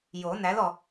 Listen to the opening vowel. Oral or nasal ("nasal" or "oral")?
oral